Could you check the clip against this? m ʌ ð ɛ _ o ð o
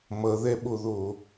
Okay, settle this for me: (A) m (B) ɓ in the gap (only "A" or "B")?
B